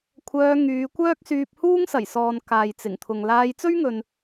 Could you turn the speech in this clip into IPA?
kʷʰ œː˧ ŋ yː˨˧ kʷ œː˥ k̚ s yː˧ p̚ h uː˥ ŋ s ɐ˨˩ j s ɔː˨ n k aː˨ j t͡s ɪ˨˩ ŋ t̪ʰ ʊ˨ ŋ l aː˧ j t͡s ɵ˥ ɥ ŋ ɵ˨ n

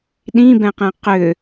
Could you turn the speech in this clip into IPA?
ɗ ĩ b ɛ̃ q ɛ̃ q ʏ

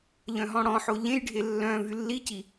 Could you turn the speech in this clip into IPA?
ʎ œ̃ ɦ ɔ̃ ɽ ɔ̃ ħ o ʎ ẽ j ɖʱ e lː œ̃ v y lː i c i

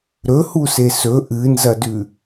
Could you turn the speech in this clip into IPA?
ɾ ɵ h u s e s ɵ ʔ ɨ n z ɐ d ʉ

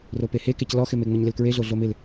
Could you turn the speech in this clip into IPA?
r o p e h e k e c l ɔ x ɪ m e ŋ͡m ɪ ɲ l ɪ l k ɹ e ɮ o ɮ o m ɪ l

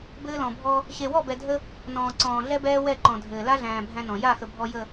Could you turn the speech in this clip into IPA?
b ɘː˦ l ɔ̃˨ bʱ ɔ˦ | ɕ e˨ w ɔ˦˨ b ɛ˨ dʱ ə˦ | n ɔ̃ː˨ ǀ ɔ̃ː˨ ɮ ɛ˦ b ɛː˦ w ɛ˦˨ ǃ ɔ̃˨ dʱ ɘː˨ l a˦ ɮ æ̃ː˨ bʱ æ̃˦ n ɔ̃˨ j a˦˨ x ə˨ bʱ ɔ˨ j ə˨

